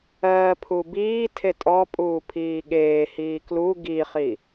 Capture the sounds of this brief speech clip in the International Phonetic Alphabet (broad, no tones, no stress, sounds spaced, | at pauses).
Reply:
ɜː pʰ u b iː tʰ e tʼ ɔ pʼ uː pʰ iː ɠ eː h iː k l u ɡ i χ i